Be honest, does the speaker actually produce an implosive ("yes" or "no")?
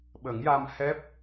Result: yes